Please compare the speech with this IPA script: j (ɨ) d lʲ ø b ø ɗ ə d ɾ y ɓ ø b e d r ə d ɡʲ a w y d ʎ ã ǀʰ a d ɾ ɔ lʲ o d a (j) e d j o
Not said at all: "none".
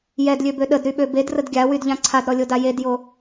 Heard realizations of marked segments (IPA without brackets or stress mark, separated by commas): ɛ, j